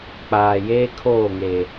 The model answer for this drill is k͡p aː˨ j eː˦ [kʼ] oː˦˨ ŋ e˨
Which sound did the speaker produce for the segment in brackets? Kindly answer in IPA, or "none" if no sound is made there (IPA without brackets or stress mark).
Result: kʰ